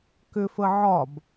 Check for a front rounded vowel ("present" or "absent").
present